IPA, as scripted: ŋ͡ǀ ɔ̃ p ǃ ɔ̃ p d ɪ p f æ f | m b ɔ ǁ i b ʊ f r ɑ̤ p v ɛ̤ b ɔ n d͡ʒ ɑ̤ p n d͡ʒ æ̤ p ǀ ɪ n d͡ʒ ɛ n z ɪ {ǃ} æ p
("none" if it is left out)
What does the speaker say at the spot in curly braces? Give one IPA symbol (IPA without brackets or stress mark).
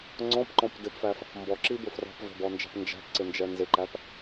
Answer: ǃ